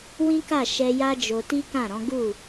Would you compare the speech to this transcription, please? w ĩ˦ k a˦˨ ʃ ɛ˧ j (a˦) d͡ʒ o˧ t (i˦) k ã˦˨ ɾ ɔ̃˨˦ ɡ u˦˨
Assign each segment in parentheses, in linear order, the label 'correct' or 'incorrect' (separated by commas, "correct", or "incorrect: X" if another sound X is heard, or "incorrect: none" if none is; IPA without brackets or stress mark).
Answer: correct, correct